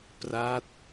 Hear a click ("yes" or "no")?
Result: no